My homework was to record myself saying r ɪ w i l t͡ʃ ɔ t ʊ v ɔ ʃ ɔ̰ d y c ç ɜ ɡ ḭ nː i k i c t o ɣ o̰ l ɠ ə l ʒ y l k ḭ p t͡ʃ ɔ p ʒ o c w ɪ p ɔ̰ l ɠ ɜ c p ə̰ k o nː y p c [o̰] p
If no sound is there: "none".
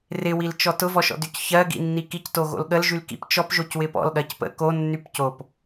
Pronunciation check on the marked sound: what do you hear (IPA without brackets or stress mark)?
o